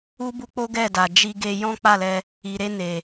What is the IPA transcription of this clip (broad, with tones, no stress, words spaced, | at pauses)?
u˦bu˦k͡po˦ ɡɛ˦˨da˨ d͡ʒi˧ɡe˧ jɔ̃˦k͡pa˦˨lɛ˧ | i˨ɾe˧ ne˨